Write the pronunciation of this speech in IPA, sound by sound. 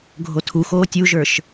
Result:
ɡʱ o tʰ u x oː tʲ u ʒ ə˞ ʃ

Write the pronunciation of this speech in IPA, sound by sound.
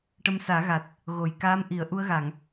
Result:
ʈ ə˧ m s aː˨˩˦ ɣ a˨˩ t̚ | ɣ o˨˩˨ j k aː˧˥ m ʔ i˨˩˦ ə̯ ʔ u˧ ə̯ ɣ a˨˩˨ ŋ

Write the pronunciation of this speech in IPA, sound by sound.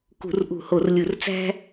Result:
k ṳ˧˩˧ r ʔ ṳ˧˩˧ h o˧˩˧ r lʲ ɯ˧˩˧ r t͡s æ̤˦

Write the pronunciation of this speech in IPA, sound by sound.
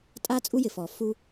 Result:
tʼ a˥ t͡sʼ u˥ j ɪ˩ f ɔ˩ f u˥

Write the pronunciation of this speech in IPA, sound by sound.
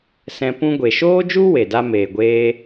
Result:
s ɛ̃˧ p ũ˧ ɡʷ e˨ ʃ oː˦ d͡ʒ u˦ w e˨ d a˦ m eː˨ ɡʷ eː˦

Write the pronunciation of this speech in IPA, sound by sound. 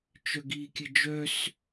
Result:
t͡ʃ œ ɡ iː kʲ ə d͡ʒ œ s

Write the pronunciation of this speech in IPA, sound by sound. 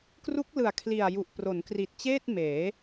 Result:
k r u˦˥ k̚ l ɯ˨˩ a̯ kʰ l i˨˩ a̯ j u˨˩ ʔ p r o˩˦ n k r i˨˩ t̚ t͡ɕ eː˥˩ t̚ m eː˩˦

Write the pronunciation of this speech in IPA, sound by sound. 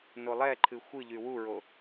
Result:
n o lˠ ɛ ǃʰ ɨ xʷ ɨ ʎ y w u ɹ o

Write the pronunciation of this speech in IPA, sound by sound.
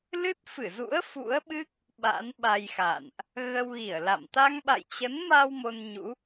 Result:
l ɨ˦˥ t̚ f ɨ˧˩ z ṵ˧˥ ə̯ f ṵ˧˥ ə̯ ɓ ɨ˦˥ k̚ | ɓ a̰˧˥ n ɓ a˧ j x a̰˧˨ n ʔ | ɣ ə˧ w ɣ i˧˩ ə̯ l a̰˧˨ m t̪ a˧ ŋ ɓ a̰˧˨ j t͡ɕ ə˨˦ n m a˧ w m o˧ n ɲ ṵ˧˥

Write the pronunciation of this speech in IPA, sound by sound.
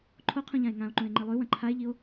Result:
ǃʰ o qʰ ũ ʎ ã e̯ ŋ ã o̯ ǃ ũ e̯ ŋ͡ǃ i lˠ ʉ w ɐ̃ ǃʰ a e̯ ʎ i o̯

